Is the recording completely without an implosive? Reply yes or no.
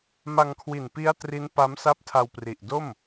yes